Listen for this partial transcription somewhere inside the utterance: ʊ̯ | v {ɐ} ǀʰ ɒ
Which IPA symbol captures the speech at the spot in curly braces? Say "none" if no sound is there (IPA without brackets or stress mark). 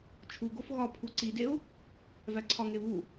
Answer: æ